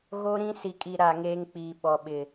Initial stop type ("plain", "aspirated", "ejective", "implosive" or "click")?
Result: ejective